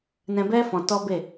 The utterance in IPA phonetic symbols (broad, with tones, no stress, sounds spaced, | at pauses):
n ɛ̃˧ b ɛ˦ f ɔ̃˧ t ɔ˦ b e˦˨